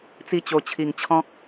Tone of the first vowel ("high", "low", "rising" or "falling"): falling